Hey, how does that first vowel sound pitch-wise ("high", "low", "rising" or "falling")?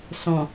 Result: low